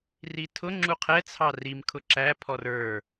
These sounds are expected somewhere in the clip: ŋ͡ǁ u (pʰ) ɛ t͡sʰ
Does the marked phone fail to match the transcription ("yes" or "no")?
yes